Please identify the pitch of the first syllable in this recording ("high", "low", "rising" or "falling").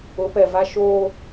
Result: rising